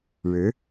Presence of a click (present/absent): absent